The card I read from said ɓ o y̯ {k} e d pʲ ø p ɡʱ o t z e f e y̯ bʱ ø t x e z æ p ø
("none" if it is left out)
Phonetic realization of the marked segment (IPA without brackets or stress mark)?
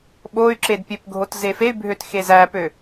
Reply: ǁ